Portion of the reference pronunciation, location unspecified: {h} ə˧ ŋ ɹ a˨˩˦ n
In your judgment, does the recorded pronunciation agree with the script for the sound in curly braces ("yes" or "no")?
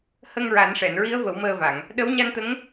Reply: yes